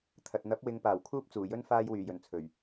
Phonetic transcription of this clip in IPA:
t̪ʰ ɐ˨ t̚ n̪ ɐ˨˥ p̚ w ɪ˨˧ ŋ p aː˨˩ w kʰ uː˥ p̚ t͡s uː˨˩ j ɵ˥ n f aː˥ j w yː˨˩ j ɵ˨˩ n t͡sʰ ɵ˨˩ ɥ

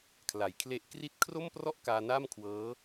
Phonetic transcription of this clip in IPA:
kʰ l a˩˦ j kʰ l e˦˥ ʔ k r i˥˩ t̚ kʰ r o˥˩ m p r ɔ˥˩ ʔ k aː˧ n aː˥˩ m kʰ w ɤː˦˥

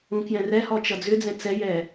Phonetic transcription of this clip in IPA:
ũ k j ɛ̃ r ɛ h ɔ t͡ʃ ʌ d͡z ʏ d͡z ɛ̃ t͡s ɛ j ɛ

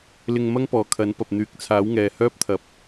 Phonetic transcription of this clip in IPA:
l ɪ˧ ŋ m ɐ˥ ŋ p ɔː˨ kʰ ɐ˨˥ n p ɐ˨ p̚ n̪ yː˨˥ k̚ t͡sʰ aː˨˥ w ŋ ɛː˨ h œː˥ p̚ t̪ʰ ɐ˨ p̚

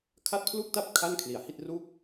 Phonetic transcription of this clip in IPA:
kʰ a˥˩ t̚ pʰ l u˥˩ k̚ t a˥˩ p̚ kʰ a˥˩ n kʰ l i˨˩ a̯ h i˥˩ t̚ r u˥˩ k̚

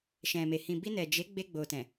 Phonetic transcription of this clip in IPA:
ʃ ɛ̃˨ m e˨ h ĩ˨ b i˧ n ɛ˨ d͡ʒ e˨˦ ɡ͡b e˧ ɡ͡b o˨ t ɛ̃˨

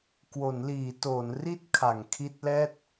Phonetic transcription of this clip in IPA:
k w o˩˦ n l iː˩˦ t oː˩˦ n r i˦˥ t̚ kʰ a˩˦ ŋ kʰ i˦˥ t̚ l ɛː˥˩ t̚

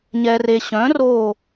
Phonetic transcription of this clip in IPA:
ɲ ɛ˩ r e˩ ɕ œ̃˩˥ r o˧˩

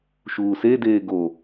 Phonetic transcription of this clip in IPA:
ʃ uː s e d eː ɡ o

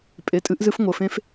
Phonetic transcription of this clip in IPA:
pʼ e˩˧˩ tʼ ɨ˧˥ ʔ z ɨ˧˥ f ŋʷ ə˩˧˩ f ẽ˧˥ f

